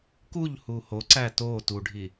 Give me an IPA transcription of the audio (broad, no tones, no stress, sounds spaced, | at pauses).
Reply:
k u ʎ h u h o ǀ æ t o t u ɖʱ i